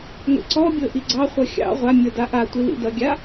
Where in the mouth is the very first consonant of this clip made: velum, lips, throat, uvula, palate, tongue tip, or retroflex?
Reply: velum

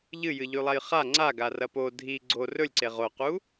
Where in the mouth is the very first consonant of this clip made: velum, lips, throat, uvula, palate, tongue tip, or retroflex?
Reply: palate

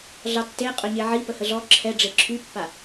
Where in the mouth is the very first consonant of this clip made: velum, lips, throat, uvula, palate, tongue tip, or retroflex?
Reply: tongue tip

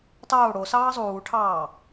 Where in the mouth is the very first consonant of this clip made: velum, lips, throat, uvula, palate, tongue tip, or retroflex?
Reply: tongue tip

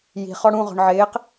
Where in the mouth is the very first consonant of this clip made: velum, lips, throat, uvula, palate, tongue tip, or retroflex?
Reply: palate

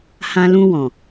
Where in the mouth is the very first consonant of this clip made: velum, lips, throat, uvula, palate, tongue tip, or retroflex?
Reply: throat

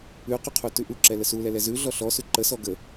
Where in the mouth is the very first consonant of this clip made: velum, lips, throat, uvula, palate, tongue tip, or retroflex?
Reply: uvula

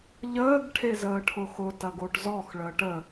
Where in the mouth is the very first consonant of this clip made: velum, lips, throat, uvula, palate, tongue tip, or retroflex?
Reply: palate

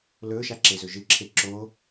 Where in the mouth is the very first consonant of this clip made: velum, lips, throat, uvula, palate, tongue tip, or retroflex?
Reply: tongue tip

